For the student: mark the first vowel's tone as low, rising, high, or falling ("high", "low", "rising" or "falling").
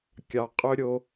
low